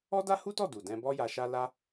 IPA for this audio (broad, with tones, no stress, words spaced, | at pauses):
ɔ˦da˦hu˦tɔ˦˨ du˨dɛ̃˧bɔ˦ ja˧ʃa˦ la˦